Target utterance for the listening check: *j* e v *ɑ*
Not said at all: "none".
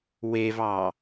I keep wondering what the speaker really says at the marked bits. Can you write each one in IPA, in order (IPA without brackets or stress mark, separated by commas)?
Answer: w, ɑ